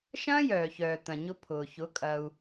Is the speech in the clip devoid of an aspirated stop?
no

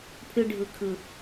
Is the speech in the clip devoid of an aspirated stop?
no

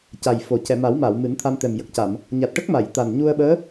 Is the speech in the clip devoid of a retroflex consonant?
no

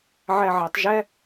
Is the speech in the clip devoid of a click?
yes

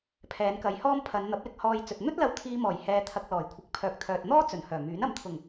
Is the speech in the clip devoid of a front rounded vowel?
no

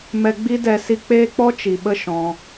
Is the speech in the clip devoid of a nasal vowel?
no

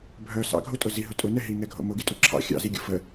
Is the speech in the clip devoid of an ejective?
no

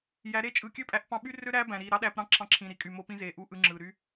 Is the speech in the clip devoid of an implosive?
no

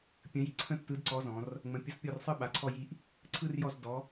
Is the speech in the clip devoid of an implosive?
no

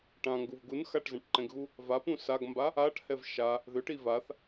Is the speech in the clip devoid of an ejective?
yes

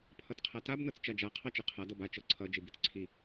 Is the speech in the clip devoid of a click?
no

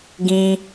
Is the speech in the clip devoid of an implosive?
yes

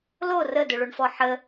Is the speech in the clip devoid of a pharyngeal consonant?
no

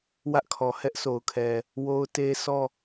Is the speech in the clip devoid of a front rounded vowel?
yes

